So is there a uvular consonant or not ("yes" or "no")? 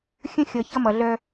no